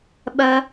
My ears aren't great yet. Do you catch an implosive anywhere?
yes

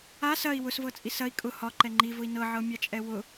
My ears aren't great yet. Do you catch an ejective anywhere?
yes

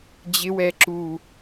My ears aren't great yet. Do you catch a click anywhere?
yes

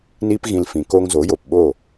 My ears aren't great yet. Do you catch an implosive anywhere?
yes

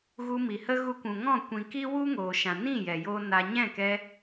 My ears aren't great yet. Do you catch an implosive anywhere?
no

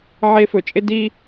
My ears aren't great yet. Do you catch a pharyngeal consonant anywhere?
yes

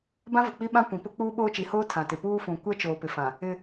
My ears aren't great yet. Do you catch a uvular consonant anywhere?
no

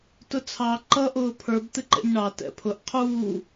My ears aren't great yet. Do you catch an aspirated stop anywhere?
yes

